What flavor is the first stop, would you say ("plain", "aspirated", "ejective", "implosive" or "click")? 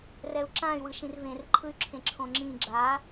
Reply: click